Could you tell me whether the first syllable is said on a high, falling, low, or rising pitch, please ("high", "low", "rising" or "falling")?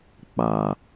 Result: low